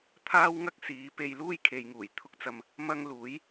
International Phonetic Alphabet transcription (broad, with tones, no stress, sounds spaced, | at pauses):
t̪ʰ aː˥ w ŋ ɐ˥ k̚ s iː˨˥ p e˧ j l uː˥ j kʰ e˨ j ŋ uː˨˩ j t̪ʰ ʊ˥ k̚ t͡s ɐ˧ m | m ɐ˥ ŋ l uː˨˥ j